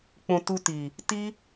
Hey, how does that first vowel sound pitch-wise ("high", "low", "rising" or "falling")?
low